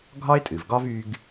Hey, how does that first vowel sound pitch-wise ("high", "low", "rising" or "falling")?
high